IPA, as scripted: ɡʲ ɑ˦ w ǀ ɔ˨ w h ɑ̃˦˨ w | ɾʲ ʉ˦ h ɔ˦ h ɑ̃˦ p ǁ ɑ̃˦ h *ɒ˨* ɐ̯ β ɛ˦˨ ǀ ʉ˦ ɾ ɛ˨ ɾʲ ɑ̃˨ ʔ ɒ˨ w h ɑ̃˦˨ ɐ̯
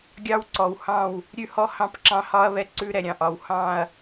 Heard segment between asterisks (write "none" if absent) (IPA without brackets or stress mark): ɒ˦